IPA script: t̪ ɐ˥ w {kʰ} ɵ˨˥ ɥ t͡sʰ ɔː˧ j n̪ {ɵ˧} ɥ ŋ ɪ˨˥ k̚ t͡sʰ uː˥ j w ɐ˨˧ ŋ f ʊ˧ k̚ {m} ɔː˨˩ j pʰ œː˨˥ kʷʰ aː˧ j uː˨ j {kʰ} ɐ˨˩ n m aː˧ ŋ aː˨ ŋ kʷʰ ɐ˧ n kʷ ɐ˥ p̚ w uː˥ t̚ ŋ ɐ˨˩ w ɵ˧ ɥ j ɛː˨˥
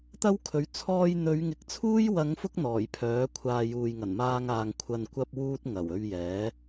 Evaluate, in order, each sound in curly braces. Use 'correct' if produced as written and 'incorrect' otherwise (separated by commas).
correct, incorrect, incorrect, incorrect